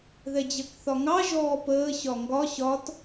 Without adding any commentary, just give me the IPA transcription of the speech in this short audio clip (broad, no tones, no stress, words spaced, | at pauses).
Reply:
ðɛd͡ʑɜkθɒŋɑ ʒɔːpəː ɕɒŋɡɒ ɕɒt